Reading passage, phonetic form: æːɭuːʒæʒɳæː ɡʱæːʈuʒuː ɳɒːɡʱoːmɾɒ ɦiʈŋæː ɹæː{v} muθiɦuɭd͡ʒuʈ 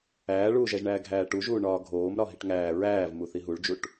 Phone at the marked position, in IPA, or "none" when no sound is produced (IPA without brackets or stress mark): v